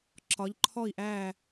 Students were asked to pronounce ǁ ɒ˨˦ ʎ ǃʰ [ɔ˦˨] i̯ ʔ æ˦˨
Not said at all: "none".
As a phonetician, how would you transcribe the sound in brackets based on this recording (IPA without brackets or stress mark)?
ɔ˦˨